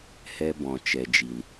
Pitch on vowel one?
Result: high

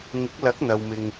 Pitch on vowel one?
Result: rising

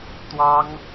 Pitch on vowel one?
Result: high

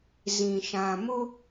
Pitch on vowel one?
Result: low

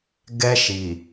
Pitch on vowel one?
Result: high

